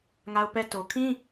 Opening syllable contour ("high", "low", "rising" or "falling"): high